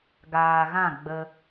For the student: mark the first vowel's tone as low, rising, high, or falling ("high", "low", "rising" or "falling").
low